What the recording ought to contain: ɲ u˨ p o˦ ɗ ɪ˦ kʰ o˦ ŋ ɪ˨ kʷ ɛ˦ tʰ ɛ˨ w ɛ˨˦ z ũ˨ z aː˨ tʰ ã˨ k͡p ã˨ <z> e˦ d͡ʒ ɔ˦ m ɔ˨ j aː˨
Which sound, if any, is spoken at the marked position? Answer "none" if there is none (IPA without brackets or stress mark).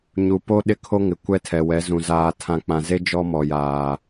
z